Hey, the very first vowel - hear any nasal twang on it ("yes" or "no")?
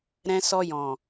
yes